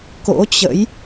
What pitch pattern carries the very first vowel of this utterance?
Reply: rising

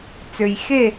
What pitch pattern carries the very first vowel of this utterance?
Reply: low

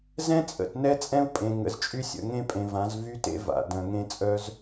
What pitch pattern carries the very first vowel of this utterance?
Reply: high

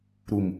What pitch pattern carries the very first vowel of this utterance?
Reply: low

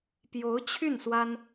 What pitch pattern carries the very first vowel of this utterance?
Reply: rising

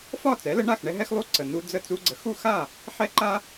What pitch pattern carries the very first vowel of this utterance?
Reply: falling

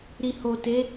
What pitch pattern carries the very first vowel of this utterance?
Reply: low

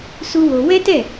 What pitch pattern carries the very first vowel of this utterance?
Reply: high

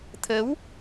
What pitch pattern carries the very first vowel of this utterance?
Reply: rising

